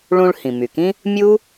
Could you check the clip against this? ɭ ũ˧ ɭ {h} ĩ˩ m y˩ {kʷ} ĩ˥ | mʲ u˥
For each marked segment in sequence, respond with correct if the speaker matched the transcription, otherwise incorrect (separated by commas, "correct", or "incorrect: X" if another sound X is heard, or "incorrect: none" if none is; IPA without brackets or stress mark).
correct, incorrect: k